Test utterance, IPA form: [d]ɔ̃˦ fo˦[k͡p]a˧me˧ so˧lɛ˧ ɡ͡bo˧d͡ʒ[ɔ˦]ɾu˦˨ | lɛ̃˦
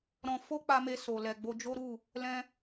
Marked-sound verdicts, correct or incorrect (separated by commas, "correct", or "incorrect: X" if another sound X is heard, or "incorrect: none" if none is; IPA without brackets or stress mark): incorrect: ɾ, correct, incorrect: o˦